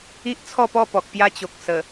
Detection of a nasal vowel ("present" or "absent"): absent